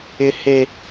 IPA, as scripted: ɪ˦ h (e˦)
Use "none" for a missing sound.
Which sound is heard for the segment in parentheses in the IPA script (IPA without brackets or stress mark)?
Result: e˦